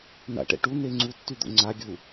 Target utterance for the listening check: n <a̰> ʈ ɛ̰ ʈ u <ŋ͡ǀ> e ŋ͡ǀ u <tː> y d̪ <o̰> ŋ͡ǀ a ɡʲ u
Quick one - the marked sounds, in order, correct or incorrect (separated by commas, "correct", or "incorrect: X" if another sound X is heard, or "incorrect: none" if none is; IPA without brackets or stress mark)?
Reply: correct, incorrect: n, correct, correct